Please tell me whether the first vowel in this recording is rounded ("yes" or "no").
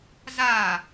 no